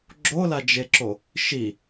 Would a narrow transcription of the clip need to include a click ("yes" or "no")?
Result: yes